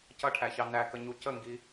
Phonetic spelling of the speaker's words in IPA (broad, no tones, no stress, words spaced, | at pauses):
cʌʈʰæçɑ nækəɲu cəŋɡi